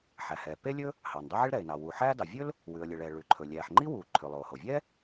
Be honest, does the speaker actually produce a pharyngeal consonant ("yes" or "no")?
yes